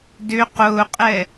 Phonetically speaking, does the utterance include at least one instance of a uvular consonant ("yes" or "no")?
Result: yes